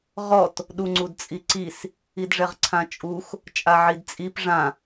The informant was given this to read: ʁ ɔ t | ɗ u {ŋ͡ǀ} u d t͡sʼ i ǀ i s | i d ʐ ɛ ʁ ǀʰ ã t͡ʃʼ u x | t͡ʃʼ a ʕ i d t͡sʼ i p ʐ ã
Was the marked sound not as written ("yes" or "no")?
no